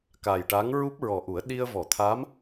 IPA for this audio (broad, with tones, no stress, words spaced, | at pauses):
ka˨˩jʈa˧˥ŋ ɹu˦˥p̚ɹɔ˨˩ʔu˨˩˦ə̯ ɗi˧ə̯vɔ˨˩˨t̪ʰa˧˥m